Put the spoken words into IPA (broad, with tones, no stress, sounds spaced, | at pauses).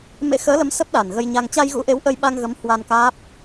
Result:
m ḛ˧˥ x əː˨˦ l ə˨˦ m s ə˦˥ p̚ ɗ a˨˩ n ɣ ə˧ j ɲ a˧ ŋ t͡ɕ a˧ j ɣ ṵ˧˥ ʔ e˨˦ w ʔ ə˧ j ɓ a˧ ŋ ɣ ə˨˦ m h w a˧ n k aː˦˥ p̚